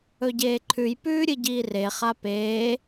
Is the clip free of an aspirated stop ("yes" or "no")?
no